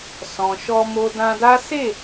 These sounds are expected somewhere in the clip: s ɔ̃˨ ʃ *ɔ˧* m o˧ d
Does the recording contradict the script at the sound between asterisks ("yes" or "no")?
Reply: no